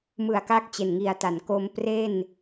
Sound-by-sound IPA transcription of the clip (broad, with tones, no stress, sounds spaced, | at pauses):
m ɯ˨˩ a̯ k a˦˥ k̚ t͡ɕ e˨˩ n ŋ i˨˩ a̯ t a˩˦ n k o˧ m p r e˥˩ n